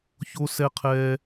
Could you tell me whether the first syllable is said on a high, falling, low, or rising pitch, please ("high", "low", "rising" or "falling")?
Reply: high